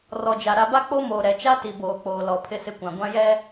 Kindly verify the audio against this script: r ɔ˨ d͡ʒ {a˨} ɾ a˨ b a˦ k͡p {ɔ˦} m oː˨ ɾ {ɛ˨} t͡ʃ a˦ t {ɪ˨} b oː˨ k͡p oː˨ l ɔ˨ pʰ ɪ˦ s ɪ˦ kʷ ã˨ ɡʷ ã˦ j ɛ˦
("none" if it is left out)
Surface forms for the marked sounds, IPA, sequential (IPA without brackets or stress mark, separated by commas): a˨, o˦, ɛ˨, i˨